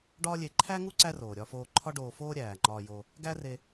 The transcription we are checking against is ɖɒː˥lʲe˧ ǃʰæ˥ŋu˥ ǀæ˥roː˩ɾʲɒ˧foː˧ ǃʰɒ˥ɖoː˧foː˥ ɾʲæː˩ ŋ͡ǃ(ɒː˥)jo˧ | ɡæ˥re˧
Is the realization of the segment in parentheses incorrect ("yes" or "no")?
yes